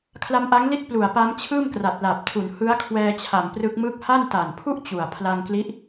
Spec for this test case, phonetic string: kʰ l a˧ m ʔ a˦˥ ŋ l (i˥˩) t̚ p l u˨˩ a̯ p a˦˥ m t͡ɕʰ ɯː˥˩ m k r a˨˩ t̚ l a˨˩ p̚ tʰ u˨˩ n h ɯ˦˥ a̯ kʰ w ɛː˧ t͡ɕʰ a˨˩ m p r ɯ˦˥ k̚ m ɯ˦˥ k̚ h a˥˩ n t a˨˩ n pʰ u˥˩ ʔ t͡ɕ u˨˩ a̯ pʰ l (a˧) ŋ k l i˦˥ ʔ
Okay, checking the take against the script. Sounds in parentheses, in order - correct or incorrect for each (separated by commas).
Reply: correct, correct